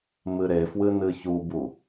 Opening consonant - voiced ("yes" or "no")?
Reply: yes